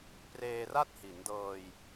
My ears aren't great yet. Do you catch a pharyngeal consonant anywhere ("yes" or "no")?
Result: no